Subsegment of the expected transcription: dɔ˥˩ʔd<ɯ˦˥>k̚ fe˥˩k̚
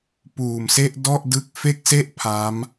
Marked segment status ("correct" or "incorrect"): correct